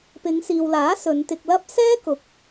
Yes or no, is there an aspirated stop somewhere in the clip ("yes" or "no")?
no